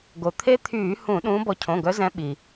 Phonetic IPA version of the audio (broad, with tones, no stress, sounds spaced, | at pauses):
ɡ o˩ t̪ʰ e˦˥ t̪ʰ yː˧˩˧ h ũ˧˩˧ ɗ ũː˨˦ b ɔ˨˦ cʰ õ˩˧˩ ɡ œ˨˦ z ɛ̃˨˦ ɓ i˩